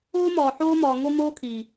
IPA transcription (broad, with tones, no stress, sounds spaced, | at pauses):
oː˦ m ɒː˨ ħ oː˦ m ɒː˨ ŋ o˦ m oː˦ kʰ iː˨